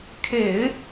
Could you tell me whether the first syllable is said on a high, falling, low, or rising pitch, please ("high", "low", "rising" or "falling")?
low